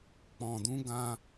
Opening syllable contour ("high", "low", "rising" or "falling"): low